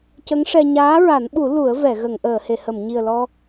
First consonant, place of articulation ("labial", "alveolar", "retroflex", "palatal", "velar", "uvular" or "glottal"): palatal